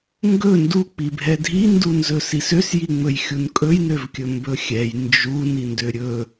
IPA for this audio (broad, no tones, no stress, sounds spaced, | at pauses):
ŋ ɡ ɵ n d u k͡p i bʱ ɛ dʱ i n d u n z ɵ s i s ø s j i ŋ͡m ɵ j xʲ u n kʼ ɵ j n ø v kʲ ɵ m b ɵ xʲ ɛ j n d͡ʒ u n i n d ø ɾʲ ɵ